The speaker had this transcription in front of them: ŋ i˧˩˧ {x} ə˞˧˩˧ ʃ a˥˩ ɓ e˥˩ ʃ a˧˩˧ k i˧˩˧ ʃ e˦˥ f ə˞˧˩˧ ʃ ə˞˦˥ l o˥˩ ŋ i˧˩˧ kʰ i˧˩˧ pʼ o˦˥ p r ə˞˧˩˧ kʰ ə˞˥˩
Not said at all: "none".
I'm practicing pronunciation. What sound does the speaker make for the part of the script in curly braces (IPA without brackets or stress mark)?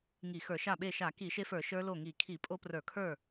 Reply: x